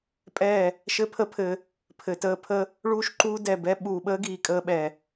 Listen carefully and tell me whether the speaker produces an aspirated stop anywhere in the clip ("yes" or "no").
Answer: yes